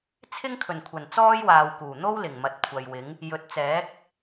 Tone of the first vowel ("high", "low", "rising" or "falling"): high